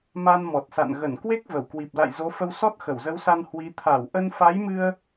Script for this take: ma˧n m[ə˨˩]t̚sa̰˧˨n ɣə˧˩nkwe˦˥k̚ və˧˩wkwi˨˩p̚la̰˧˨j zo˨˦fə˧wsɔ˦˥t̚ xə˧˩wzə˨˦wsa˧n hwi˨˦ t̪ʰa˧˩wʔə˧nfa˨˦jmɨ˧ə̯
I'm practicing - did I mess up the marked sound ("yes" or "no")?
yes